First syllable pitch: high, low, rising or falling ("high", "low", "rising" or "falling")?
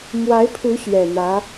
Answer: rising